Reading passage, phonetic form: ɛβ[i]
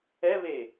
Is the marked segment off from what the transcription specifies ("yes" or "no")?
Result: yes